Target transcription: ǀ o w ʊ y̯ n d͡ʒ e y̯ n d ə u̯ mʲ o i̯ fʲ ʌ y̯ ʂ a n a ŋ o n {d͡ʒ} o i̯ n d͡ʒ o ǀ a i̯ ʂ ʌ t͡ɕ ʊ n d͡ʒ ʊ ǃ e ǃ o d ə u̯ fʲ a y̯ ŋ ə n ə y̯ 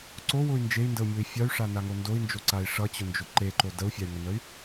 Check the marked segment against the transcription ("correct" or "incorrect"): incorrect